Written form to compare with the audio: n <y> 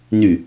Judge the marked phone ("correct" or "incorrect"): correct